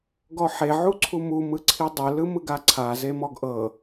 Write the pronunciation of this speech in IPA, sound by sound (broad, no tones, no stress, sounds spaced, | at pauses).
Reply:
ɡ ɔ ħ e ʕ u ǀʰ u m u m ɯ ǀʰ i dˤ ɤ l ɯ m ɯ ɡ a ǀʰ a z e m ɔ ɡ ʔ ɤ